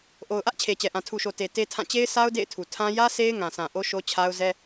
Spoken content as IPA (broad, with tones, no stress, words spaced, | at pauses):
ʔo˨ʊ̯ʔä˦ʔ t͡ɕʰe˨t͡ɕɛ˨ʔã˨ tʰu˨ʃo˨ te˨ te˦tʰã˦˨ t͡ɕe˦ɪ̯sʰa˦ʊ̯ dḛ˦˨ɪ̯tʰu˨tʰã˦ jä˦ se˦ɪ̯ŋã˨sʰã˨ ʔo˦ ʃo˦t͡ɕʰa˦ʊ̯ zɛ˦